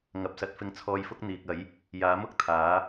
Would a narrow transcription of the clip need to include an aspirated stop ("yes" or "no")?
yes